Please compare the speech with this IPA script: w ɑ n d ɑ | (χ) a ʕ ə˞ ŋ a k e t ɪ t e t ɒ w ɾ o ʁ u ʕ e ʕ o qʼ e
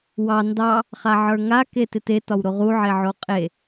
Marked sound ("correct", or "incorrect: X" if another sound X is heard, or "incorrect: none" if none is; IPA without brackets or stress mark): correct